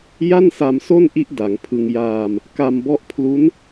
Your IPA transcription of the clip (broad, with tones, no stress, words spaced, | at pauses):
ja˥˩nsa˧mso˥˩nʔi˦˥ʔ da˩˦ŋpʰɯ˧ŋ jaː˧m | ka˧mbɔ˦˥ʔpʰlu˦˥n